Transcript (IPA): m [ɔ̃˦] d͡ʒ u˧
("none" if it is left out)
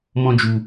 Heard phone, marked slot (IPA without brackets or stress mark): ɔ̃˦